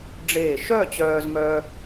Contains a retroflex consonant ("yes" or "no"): yes